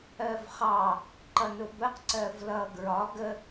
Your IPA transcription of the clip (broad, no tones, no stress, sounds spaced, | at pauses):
ɜ v χ ɑ | ǃ ʌ n ʊ b ə q ǀ ɜ v l ʌ ɡ ɹ ɒ ɡ ə